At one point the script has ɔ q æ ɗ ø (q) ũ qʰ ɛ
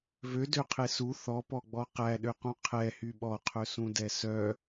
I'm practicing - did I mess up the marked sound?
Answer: no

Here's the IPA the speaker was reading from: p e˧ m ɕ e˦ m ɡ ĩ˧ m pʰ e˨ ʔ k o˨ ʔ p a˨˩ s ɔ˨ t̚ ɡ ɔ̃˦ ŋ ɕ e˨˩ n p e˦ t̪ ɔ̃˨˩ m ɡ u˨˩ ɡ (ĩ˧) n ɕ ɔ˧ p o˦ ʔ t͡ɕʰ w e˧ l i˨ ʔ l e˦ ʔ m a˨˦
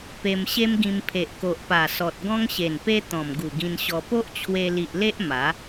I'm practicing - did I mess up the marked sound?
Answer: no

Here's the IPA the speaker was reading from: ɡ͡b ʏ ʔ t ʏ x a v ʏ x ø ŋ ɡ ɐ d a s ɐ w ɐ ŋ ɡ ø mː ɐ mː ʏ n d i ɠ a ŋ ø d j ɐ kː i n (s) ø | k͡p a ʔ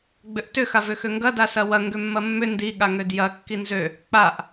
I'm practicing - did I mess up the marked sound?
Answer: yes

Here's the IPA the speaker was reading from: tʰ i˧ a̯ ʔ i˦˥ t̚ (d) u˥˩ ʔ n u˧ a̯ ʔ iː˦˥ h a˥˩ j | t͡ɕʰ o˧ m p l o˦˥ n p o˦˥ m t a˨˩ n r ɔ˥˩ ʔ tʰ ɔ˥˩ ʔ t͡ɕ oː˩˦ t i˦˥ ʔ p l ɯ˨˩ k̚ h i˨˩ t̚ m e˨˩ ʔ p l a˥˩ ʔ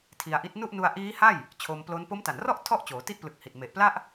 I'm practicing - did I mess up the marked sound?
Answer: yes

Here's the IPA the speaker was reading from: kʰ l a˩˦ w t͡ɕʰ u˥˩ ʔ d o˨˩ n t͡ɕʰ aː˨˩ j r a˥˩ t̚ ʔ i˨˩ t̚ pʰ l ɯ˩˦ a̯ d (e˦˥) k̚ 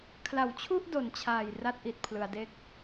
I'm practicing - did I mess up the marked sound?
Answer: no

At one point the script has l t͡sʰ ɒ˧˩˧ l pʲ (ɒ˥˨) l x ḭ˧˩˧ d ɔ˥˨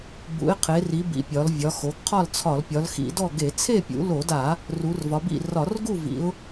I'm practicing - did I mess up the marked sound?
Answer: yes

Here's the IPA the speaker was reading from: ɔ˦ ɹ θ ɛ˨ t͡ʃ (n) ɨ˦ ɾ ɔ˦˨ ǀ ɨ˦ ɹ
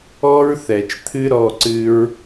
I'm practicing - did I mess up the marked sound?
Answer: yes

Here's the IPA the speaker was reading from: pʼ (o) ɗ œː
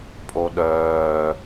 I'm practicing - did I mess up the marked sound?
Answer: no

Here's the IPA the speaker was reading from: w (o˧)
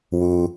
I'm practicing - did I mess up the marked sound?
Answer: yes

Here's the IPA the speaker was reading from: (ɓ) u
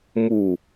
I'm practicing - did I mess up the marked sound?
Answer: yes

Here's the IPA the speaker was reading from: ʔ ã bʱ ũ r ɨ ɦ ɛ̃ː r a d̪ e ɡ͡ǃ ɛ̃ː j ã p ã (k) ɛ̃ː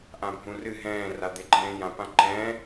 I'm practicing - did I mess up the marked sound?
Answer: yes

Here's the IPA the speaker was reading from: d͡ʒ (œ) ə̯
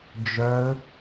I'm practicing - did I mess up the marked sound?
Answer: no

